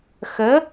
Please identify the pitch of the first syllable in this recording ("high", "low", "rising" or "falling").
rising